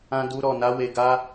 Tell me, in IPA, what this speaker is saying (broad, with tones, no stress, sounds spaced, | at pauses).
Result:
ã˦ d u˦ ɾ ɔ˧ n a˦ w e˧ ɡ a˦